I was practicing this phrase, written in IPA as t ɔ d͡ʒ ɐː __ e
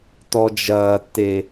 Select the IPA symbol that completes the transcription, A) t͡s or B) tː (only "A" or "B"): B